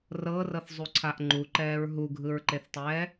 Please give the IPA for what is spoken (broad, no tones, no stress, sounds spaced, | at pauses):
r ɤː r ɤ θ zˤ u ǀʰ a ʔ ŋ͡ǃ u ǃ ɛː ɹ ɦ u ɡʱ ɯ ɹ ǃ e θ tˤ ɛː